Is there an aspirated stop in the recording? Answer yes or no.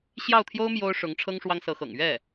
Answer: yes